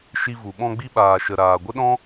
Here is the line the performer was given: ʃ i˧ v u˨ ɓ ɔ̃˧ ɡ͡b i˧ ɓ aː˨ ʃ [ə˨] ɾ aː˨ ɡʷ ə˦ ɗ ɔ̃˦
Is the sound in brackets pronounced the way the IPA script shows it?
yes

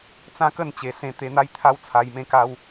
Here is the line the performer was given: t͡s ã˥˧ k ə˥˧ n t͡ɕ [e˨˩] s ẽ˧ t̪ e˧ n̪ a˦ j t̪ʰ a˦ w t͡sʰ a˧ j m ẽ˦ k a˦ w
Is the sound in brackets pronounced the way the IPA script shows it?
yes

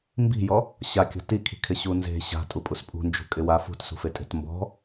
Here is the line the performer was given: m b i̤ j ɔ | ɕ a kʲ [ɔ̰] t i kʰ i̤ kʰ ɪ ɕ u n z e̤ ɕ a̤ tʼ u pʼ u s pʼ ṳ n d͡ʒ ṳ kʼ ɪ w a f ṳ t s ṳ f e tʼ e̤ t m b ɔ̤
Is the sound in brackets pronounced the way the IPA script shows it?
no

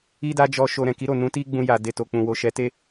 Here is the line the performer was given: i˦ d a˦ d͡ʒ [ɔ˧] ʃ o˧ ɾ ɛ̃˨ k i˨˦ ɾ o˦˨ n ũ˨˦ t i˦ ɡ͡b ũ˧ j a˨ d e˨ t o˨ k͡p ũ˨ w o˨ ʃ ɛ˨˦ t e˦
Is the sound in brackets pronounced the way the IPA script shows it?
yes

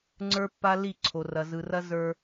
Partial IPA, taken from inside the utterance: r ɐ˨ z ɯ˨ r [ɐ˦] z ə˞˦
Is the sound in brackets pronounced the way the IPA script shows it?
yes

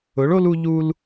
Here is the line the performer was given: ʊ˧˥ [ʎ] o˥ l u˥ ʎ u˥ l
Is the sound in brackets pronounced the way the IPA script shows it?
no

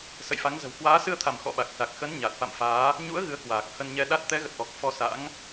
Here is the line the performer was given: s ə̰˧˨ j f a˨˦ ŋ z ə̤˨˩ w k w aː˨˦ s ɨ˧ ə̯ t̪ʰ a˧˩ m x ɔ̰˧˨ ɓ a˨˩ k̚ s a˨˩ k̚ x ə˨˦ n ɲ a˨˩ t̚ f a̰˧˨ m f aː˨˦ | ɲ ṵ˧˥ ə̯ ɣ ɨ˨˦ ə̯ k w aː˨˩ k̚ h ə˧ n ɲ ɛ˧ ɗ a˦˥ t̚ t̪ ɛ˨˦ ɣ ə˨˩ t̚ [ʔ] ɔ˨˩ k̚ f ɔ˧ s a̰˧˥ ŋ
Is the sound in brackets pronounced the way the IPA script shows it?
yes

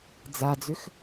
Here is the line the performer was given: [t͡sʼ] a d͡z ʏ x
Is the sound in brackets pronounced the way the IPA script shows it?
no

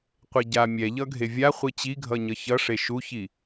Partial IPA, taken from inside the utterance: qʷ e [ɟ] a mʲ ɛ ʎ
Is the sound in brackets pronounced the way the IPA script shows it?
yes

